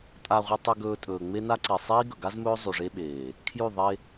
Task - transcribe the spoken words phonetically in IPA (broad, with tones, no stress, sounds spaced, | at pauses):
tʼ a˨ ʁʷ ɨ˨ tˤ ʉ˨ ɡ ɵː˨ tʼ ɵː˨ ŋ͡m e˦ n a˦ ǀ i˨ sˤ iː˦ ɡ ɵ˨ ɡ a˦ z m ɵː˦ zˤ ʉ˨ ʐ e˦ ɓ eː˨ | kʰ j ʉ˦˨ ðˤ e˦